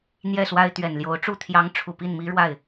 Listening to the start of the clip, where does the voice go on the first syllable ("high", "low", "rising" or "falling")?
falling